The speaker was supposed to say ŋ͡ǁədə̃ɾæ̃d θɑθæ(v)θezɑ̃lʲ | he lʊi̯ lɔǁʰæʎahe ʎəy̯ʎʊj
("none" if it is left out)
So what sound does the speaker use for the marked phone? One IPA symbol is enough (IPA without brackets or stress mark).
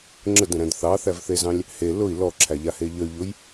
v